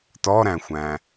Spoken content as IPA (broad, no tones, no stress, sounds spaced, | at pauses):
t ɔ ɾ æ̃ xʷ æ̃